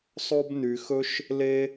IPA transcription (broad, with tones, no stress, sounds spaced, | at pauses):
sˤ o˦ b n y˧ x ɵ˦ ʃ | l e˦